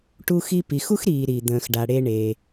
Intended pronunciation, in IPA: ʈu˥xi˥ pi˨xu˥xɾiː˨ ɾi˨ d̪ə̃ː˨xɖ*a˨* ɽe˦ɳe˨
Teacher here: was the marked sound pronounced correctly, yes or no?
yes